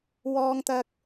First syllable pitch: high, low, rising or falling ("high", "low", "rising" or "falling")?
high